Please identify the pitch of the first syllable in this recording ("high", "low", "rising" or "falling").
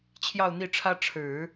falling